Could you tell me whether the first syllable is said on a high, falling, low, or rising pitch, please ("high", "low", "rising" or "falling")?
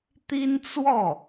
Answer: high